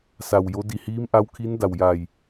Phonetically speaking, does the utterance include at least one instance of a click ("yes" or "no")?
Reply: no